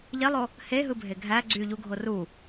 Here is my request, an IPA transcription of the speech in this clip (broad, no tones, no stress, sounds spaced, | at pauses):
ʎ e lˠ o | h e ɦ ɯ bʱ e ɡʱ æ ɡ͡ǀ y ʎ u ɡʱ o r u